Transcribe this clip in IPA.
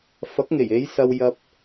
f ɐ˨˥ k̚ ŋ e˨˩ j e˨˧ j s ɐ˧ w j ɐ˧ p̚

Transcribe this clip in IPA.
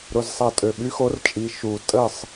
ɾ ʊ˩˧˩ z sˤ a˧˩ tʼ ø˩ ɓ y˨˥ x o˨˥ r t͡ʃʼ i˩˧˩ ʃ u˧˩ tʼ ə˥˨ sˤ

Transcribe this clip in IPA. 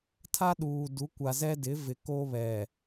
tʰ a˦ ɗ uː˨ d u˨˦ kʷ a˨ z ɛ˦ d ɪ˨˦ v ɪ˨ k o˦ β ɛ˨

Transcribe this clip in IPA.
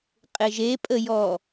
qʼ e ʒ e pʼ ə j ɔ

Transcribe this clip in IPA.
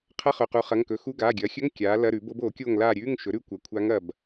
qʰ ɐ˧˥˧ χ ɵ˩˧˩ q u˩˥ χ ɐ˩˧˩ ŋ k ɵ˩˥ x u˧˥˧ ɡ aː˩˧˩ ɡʲ ɐː˩˥ xʲ ɵ˧˥˧ ŋ kʲ aː˩˥ l ɐ˧˥˧ ɾ ʉ˨˩˦ b o˧˥ b oː˨˩˦ kʲ oː˦˨ ŋ l aː˦˨ ɾʲ ʉː˧˥˧ ŋ ʃ ɵ˩˥ ɾ ʉ˧˥ kʷ ɐ˩˧˩ kʷʰ aː˧˥ ŋ ɐ˦˨ b

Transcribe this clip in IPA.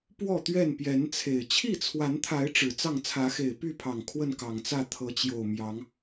p w ɔ˥˨ t̪ ɥ ɛ˥˨ n p j ɛ˨˦ n t͡sʰ e˨˩ ɪ̯ t͡ɕʰ i˥˨ t͡sʰ w a˨˦ n t̪ʰ a˨˦ ɪ̯ ʈ͡ʂ ɻ̩˨˩ t͡s ɑ˥˨ ŋ t͡sʰ ä˨˦ x e˨˩ ɪ̯ p y˥˨ pʰ ɑ˨˩ ŋ kʰ w ə˥˨ n k ɑ˨˩ ŋ t͡s ä˥˨ t̪ʰ ɤ˨˦ t͡ɕ j o˨˩ ʊ̯ m j ɑ˨˦ ŋ

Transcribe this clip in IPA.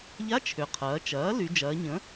ʎ a˧˥˧ t͡ʃʰ ʏ˩ qʰ ɐː˩˧ t͡ʃ ɐː˩˥ l y˩˧ d͡ʒ ɐː˩˧ ɲ ə̃˩˥

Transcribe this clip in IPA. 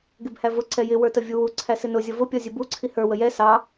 ɡ ɪ b h æ v ʊ ǀ ɛ j ɪ w ə˞ t ə vʲ u w u ǀʰ æ s ɪ n ʊ zʲ ʌ v ʊ pʲ ɔ zʲ ə b u ǀʰ i h ə˞ w ə j ɛ s ɑ

